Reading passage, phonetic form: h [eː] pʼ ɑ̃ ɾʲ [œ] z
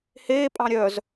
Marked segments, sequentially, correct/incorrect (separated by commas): correct, correct